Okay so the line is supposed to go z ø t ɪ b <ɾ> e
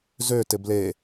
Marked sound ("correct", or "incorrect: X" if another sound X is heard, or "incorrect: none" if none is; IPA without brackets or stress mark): incorrect: l